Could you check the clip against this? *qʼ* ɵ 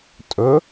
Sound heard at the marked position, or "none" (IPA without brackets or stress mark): tʼ